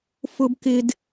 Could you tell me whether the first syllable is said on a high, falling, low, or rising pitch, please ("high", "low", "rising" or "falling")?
high